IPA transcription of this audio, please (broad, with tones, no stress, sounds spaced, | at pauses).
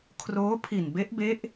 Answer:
kʰ r oː˦˥ pʰ i˨˩ n b e˦˥ ʔ b e˦˥ ʔ